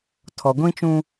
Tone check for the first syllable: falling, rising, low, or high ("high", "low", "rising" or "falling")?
low